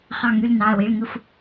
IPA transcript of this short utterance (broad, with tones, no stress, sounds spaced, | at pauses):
χ ɑ˧˩ ŋ y˩˧˩ l n ɑ˩˧˩ ɐ̯ w i˩˧˩ ɭ ŋ ɯ˧˩ f